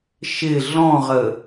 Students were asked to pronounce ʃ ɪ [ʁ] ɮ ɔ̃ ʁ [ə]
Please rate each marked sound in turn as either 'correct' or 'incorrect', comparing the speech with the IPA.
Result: incorrect: none, correct

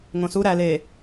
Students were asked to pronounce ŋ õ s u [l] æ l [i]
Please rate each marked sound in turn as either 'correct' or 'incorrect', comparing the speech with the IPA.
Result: incorrect: ɾ, incorrect: e

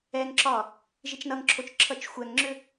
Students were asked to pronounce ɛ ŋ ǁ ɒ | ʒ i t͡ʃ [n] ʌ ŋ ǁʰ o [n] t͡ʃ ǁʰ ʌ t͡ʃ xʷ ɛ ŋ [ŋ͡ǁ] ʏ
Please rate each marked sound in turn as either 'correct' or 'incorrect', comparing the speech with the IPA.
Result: correct, incorrect: none, correct

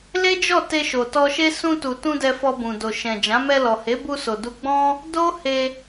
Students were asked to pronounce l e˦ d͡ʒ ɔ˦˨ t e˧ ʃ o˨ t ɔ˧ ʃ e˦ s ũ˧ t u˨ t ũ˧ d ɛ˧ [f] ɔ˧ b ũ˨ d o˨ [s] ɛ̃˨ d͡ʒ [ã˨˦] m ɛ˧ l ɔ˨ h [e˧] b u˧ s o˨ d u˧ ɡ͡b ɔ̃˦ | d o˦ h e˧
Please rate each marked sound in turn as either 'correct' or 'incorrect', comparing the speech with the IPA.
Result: correct, incorrect: ʃ, correct, incorrect: e˨˦

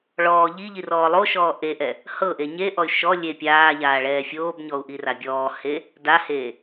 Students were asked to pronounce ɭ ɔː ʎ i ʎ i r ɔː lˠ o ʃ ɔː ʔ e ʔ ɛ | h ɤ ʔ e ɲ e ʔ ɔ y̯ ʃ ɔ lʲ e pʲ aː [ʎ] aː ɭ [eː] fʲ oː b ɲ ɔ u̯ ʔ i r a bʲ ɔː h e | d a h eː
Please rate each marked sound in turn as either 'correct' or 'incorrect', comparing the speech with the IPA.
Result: correct, incorrect: ɛː

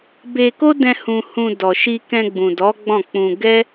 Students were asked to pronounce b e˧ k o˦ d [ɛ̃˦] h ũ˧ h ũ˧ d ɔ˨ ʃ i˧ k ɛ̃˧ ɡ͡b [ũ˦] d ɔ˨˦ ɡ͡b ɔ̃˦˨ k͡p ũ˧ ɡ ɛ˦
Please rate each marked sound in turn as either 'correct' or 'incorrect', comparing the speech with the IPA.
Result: incorrect: ɛ̃˧, incorrect: ũ˨

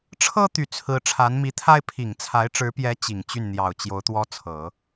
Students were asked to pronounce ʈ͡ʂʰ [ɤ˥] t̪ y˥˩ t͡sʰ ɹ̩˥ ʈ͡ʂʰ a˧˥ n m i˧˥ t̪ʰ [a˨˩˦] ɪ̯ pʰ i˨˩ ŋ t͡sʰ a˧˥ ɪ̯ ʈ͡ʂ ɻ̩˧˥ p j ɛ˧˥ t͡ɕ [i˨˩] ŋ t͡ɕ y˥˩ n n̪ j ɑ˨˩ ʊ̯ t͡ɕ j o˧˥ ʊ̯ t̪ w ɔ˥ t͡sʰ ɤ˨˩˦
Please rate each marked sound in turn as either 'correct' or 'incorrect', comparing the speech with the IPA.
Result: correct, incorrect: a˥, correct

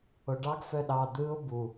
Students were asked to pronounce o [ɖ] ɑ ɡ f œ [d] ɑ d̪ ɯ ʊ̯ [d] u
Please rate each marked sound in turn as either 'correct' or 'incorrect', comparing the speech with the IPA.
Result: correct, incorrect: ɗ, incorrect: b

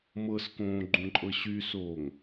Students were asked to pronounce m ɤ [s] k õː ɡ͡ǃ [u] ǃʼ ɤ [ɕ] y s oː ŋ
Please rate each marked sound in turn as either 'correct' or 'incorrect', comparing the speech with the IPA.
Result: correct, incorrect: ũ, correct

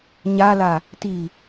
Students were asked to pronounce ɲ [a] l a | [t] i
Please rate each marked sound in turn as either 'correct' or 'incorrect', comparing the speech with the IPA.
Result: correct, correct

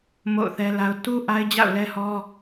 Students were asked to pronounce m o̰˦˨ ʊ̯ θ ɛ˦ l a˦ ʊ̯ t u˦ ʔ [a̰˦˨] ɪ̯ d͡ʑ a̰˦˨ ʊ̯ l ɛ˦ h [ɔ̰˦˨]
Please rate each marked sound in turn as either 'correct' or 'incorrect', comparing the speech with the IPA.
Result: incorrect: a˦, incorrect: ɔ˦

